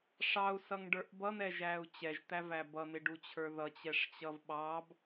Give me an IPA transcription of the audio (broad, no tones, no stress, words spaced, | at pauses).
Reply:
ʂɑu̯sʌŋɖə˞ʔ bʌn̪ɛʒæu̯ t͡ɕɛʒt̪ævæ bʌn̪ɪɖut͡ɕʰə˞ ðʌt͡ɕɛʂt͡ɕʌv ɓɑb